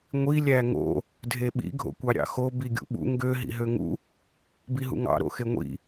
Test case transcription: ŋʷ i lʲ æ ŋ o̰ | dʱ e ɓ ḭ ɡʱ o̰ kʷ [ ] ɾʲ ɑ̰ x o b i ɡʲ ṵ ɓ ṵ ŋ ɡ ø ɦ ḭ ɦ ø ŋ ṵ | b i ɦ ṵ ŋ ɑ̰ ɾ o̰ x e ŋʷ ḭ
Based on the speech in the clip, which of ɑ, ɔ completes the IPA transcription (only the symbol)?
ɑ